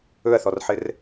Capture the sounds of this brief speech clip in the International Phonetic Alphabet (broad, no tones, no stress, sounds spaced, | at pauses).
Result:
ɵ ɐ̯ θ ɔ r ħ ɘ r